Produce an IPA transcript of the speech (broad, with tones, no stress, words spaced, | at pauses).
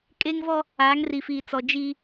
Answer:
kʼeː˦ŋvɔ˦ | aː˨˦ŋri˨fiː˨ t͡sɔ˨ d͡ʒi˦